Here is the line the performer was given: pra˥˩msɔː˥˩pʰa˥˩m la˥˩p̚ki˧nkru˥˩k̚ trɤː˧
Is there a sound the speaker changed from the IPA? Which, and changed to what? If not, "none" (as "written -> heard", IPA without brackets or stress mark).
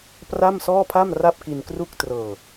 l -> r